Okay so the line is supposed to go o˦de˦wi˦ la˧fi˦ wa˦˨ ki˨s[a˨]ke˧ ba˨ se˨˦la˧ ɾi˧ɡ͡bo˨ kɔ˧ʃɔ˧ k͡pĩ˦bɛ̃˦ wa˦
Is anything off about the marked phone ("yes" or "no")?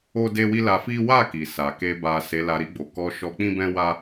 no